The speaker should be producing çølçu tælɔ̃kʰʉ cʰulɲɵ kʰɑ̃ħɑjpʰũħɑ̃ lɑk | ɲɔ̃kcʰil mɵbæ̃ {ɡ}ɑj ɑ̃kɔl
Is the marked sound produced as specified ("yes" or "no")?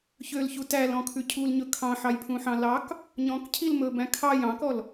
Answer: no